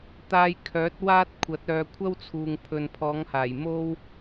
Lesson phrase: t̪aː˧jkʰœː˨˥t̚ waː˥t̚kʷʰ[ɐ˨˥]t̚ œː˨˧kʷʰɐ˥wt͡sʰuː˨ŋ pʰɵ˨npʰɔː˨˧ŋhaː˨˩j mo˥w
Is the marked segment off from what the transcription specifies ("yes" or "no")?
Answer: no